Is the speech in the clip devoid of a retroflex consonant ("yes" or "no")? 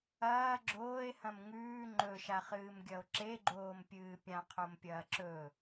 yes